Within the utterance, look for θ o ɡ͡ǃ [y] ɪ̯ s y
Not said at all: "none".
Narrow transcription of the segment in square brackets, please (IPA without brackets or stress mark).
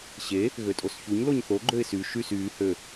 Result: ø